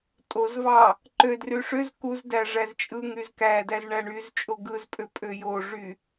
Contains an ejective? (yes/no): yes